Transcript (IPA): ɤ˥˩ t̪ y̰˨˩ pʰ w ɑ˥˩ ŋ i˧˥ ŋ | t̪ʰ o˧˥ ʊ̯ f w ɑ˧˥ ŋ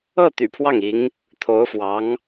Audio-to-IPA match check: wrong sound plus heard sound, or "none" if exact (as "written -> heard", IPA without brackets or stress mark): none